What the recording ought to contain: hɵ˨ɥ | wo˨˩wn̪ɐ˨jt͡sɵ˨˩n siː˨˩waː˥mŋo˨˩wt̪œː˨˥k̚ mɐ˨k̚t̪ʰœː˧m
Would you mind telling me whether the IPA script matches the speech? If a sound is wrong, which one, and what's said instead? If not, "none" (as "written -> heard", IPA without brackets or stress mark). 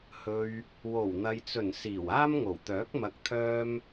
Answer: none